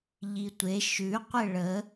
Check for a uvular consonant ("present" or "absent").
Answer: present